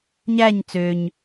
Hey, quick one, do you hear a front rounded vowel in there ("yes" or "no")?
yes